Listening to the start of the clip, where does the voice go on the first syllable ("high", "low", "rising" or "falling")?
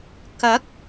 rising